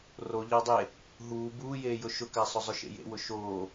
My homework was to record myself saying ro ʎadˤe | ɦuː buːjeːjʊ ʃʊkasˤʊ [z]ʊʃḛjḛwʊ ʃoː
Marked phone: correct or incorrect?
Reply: incorrect